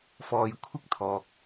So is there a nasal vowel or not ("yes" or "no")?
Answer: no